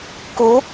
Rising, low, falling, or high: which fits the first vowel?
rising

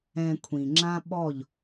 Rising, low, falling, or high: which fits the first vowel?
low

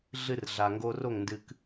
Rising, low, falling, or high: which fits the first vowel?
high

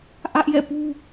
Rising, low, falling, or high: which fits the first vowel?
high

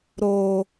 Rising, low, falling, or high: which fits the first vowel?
low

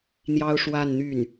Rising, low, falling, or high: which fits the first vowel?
high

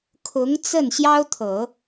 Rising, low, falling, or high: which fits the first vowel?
rising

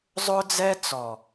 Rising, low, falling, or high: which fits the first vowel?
high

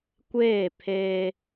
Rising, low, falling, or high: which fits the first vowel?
falling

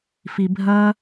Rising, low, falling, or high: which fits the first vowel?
low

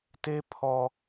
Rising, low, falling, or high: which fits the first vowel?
high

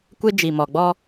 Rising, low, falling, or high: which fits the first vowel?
high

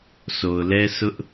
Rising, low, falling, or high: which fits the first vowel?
low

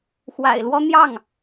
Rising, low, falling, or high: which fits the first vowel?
low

